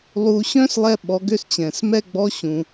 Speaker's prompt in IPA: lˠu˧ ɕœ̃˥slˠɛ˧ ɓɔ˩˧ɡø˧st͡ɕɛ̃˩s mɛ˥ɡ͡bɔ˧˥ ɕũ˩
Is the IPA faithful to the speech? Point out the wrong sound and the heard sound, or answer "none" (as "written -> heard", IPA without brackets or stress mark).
none